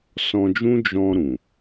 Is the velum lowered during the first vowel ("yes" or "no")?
yes